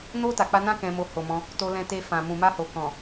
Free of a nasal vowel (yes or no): no